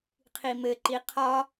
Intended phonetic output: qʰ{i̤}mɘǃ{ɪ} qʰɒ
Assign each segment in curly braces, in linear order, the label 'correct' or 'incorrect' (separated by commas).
incorrect, incorrect